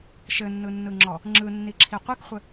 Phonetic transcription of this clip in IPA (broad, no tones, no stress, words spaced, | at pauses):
ʃɘnːɯnːɯŋ͡ǁɔ | ŋ͡ǁɯnːiǁʰi qʷikχʷɘ